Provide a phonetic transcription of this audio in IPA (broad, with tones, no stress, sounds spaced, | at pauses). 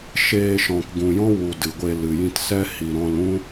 ʃ eː˧ ʃ ɔ̃˨ k ɡ ũ˨ j ɔ̃˦ w u˨ d ɨ˨ ɡʷ e˧ l ɨ˨ j ĩ˧ t s ɛ˦ h i˨ ɾ ɔ̃˧ l ũ˦